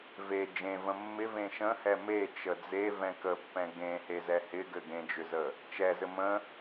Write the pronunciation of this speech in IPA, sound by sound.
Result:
v e d͡ʒ ẽ v ə̃ mː ɪ v ẽ ʃ ə̃ h ɛ m e t͡ʃ ə d͡z e v ɛ̃ k ə pː ɛ̃ ɡ ẽ h e z ɛ h ɪ ɡ ɘ ɡ ẽ d͡ʒ ʏ z ə | t͡ʃ ɛ z ɘ m ə̃

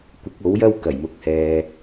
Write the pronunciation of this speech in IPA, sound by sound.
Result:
kʷ ɪ˨˥ k̚ o˨˥ w j ɐ˥ w k ɐ˨˩ j m ʊ˨ k̚ h ɛː˨

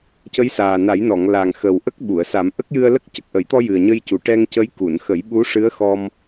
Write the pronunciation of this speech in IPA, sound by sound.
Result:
c ə˧˥ j s aː˨˩ n a˨˩˦ j n ɔ˨˩˨ ŋ l a˨˩ ŋ x ə˨˩ w ʔ ə˦˥ k̚ ɓ u˨˩˨ ə̯ s a˨˩˦ m ʔ ə˦˥ k̚ j ɨ˧ ə̯ l ə˦˥ k̚ c ə˨˩ k̚ ʔ ə˨˩˦ j t̪ ɔ˧ j ɨ˨˩ ə̯ ɲ ə˧ j c u˨˩ ʈ ɛ˧ ŋ c ə˧˥ j k u˨˩˨ n x ə˨˩˦ j ɓ u˧˥ ʂ ɨ˧˥ ə̯ x ɔ˧ m

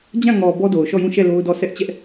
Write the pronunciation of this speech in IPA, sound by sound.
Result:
d͡ʑ ã˦˨ ŋ ɔ˨ b ɔ˦ d o˨ ʊ̯ ʃ ɔ˦˨ j ũ˦˨ ʃ ɛ˦˨ l o˦ ʊ̯ d ɔ˦˨ s ɛ˦ ʔ t͡ɕ ɛ˦ ʔ

